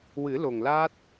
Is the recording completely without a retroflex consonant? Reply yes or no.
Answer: yes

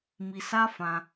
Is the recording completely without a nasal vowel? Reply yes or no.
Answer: no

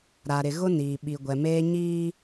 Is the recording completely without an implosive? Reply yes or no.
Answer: no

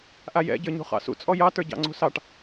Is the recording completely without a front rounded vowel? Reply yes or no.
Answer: yes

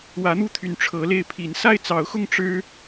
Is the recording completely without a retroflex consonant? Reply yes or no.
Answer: no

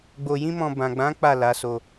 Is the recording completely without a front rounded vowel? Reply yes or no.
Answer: yes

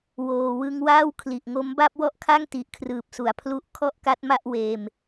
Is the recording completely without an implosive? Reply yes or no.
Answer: yes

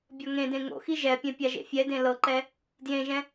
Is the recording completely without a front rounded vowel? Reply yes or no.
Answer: yes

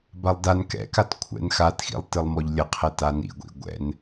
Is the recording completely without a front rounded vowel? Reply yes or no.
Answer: yes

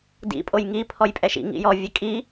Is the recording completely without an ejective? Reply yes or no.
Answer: no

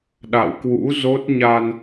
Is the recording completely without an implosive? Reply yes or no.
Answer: no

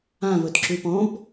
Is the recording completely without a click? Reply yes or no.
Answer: no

